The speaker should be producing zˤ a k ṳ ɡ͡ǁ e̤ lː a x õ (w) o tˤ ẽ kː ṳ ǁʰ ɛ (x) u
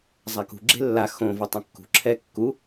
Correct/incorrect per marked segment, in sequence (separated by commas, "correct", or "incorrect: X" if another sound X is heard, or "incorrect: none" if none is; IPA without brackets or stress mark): incorrect: v, incorrect: kː